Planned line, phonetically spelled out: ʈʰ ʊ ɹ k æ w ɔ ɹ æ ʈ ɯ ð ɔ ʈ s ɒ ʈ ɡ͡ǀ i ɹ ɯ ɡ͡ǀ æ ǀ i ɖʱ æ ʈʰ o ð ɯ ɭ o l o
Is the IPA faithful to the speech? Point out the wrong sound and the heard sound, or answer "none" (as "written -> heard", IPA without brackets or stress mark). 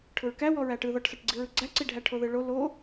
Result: none